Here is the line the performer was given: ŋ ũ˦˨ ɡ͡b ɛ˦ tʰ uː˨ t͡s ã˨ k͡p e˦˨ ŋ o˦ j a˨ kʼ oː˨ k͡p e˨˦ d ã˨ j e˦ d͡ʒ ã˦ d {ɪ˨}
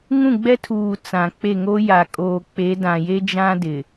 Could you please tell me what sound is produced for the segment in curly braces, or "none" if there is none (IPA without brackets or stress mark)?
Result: ɪ˨